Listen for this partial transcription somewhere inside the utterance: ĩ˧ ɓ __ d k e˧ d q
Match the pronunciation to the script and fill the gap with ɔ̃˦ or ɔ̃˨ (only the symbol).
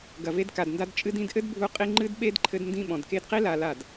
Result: ɔ̃˨